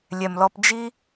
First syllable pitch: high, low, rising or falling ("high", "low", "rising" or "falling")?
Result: low